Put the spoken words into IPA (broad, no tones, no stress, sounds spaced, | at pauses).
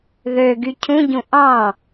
ð ø ɡ y cʰ ũ ɟ ũ ʔ ɑ̃